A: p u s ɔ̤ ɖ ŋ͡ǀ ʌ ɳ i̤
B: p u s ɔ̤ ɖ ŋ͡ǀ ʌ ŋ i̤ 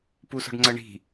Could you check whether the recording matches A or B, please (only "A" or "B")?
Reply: A